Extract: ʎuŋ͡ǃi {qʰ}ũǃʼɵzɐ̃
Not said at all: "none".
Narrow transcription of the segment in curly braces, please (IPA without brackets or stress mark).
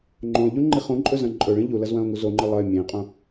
χ